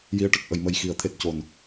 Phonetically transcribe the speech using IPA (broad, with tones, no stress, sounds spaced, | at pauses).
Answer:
j i˨˩ ə̯ ʈ ə˨˩ k̚ ʔ ə˨˩˨ j m ə˨˩ j x i˨˩˨ ə̯ t̪ʰ e˨˩ t̚ c o˨˩˨ n